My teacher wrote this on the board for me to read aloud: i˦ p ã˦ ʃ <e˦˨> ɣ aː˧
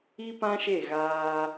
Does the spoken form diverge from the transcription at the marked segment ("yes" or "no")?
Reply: no